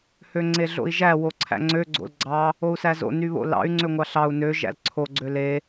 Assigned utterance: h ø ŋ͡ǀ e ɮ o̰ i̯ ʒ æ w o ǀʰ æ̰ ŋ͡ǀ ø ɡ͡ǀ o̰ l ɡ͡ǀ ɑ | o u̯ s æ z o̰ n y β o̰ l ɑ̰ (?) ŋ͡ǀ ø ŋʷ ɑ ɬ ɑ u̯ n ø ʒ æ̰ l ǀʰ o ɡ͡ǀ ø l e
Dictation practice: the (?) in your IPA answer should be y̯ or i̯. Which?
y̯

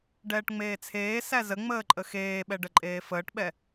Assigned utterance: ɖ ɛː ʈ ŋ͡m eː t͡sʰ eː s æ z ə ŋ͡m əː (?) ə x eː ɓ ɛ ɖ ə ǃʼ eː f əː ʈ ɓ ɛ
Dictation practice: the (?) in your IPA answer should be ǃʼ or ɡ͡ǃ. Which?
ǃʼ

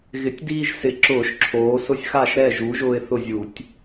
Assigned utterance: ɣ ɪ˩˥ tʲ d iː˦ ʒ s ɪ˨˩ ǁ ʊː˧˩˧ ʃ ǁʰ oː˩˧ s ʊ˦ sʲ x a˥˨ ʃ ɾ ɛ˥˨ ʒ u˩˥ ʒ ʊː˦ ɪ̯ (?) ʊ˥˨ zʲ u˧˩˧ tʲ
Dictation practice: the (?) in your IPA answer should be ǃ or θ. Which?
θ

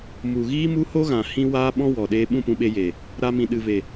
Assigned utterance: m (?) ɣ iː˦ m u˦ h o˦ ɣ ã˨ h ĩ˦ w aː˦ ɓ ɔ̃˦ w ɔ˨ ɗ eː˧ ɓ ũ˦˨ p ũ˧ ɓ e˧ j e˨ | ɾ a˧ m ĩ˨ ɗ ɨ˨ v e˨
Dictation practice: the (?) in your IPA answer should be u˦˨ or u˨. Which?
u˨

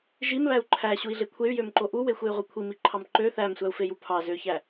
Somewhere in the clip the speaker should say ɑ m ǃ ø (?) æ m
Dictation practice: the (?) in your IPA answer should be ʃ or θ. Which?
θ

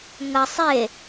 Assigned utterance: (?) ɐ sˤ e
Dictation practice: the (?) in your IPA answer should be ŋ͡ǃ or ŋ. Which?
ŋ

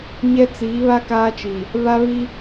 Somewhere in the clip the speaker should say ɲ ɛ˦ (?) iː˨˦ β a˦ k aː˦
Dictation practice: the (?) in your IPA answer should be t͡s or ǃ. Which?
t͡s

